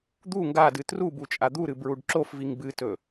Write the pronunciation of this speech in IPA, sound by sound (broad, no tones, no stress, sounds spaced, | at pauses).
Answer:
d̪ u ŋ ɡ a d ɨ t r u b u t͡ʃʼ a d̪ u ɾ ɨ b ɹ u ɖ ǁ o f v i ŋ b ɨ t ɵ